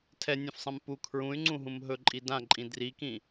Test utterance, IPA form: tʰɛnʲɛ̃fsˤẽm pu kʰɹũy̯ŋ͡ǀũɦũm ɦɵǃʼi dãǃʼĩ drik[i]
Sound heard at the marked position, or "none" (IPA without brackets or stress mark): ĩ